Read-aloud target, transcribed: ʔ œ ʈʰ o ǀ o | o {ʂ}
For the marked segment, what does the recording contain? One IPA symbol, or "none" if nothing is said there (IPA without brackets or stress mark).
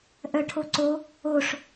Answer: ʂ